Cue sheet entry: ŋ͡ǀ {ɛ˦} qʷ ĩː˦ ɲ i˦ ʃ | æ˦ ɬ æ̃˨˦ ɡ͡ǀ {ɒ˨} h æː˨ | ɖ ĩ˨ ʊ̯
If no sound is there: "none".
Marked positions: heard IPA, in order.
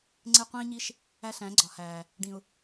e˦, ɒ˨

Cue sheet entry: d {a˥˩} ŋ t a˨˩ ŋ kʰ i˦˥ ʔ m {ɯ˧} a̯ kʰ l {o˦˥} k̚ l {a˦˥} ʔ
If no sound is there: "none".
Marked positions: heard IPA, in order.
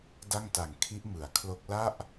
a˥˩, ɯ˩˦, o˦˥, a˥˩

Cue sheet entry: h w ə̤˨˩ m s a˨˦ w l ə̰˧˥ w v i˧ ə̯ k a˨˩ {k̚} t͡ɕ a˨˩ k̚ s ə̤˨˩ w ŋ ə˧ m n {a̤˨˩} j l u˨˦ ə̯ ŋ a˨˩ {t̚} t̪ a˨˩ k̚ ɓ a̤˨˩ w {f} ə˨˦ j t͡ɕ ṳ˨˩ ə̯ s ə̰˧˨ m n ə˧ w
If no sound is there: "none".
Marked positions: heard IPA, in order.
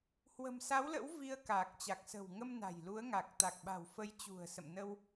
k̚, a̤˨˩, k̚, f

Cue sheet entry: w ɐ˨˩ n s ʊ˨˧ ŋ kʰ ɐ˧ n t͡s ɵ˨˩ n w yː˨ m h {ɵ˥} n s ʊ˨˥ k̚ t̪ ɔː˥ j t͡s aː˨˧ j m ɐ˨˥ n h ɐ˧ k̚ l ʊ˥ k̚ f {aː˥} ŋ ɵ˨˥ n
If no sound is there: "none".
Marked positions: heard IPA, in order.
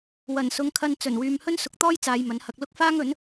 ɵ˥, aː˥

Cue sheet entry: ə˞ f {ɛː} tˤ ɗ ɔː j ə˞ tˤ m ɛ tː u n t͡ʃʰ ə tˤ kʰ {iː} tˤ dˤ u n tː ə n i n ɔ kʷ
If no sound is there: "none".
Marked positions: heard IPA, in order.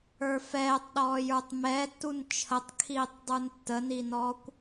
ɛː, iː

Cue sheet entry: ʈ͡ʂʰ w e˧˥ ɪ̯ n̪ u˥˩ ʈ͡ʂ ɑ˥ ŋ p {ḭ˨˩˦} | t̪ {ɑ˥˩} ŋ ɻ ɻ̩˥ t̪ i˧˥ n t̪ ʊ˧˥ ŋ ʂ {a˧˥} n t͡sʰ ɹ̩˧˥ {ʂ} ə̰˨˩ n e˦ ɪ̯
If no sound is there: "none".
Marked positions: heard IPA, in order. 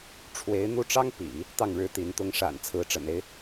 ḭ˨˩˦, ɑ˥˩, a̰˨˩, ʈ͡ʂ

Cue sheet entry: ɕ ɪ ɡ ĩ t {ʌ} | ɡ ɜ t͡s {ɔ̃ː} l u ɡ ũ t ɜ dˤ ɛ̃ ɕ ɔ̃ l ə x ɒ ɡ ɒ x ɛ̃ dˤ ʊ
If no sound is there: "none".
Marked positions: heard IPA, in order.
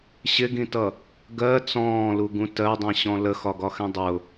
ʌ, ɔ̃ː

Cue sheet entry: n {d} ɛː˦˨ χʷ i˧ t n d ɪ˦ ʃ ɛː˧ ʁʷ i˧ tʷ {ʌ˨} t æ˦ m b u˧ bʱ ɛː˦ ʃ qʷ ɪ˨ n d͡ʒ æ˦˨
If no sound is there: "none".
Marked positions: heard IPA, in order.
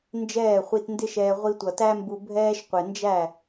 d͡ʒ, ʌ˨

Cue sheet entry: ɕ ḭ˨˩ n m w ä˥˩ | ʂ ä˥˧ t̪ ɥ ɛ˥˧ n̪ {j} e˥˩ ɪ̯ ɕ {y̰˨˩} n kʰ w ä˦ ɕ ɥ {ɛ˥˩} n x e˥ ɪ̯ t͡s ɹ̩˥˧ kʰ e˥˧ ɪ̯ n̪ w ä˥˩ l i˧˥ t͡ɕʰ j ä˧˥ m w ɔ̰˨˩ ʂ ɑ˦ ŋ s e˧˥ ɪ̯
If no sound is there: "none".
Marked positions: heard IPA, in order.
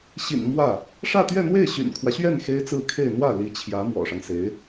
w, y̰˨˩, ɛ˥˩

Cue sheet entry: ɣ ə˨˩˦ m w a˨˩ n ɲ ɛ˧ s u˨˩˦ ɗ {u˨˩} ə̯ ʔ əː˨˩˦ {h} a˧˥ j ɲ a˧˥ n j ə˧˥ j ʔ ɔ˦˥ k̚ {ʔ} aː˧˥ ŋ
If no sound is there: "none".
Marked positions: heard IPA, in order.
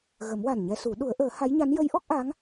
u˨˩˦, h, ʔ

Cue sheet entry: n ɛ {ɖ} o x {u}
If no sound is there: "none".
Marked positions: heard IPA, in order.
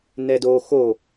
d, o

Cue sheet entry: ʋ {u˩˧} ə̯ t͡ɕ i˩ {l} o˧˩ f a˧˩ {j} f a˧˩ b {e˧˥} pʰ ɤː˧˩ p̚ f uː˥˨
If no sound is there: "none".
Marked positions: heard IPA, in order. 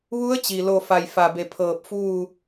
u˧˥, l, j, e˧˩

